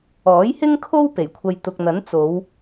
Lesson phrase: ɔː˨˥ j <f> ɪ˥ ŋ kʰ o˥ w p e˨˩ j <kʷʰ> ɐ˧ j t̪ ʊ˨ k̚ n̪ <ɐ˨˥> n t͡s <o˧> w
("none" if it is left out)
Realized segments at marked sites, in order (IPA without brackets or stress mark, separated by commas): h, kʷʰ, ɐ˨˥, o˨˧